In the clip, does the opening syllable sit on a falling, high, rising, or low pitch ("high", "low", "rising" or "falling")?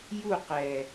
falling